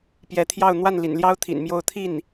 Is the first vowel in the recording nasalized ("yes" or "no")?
no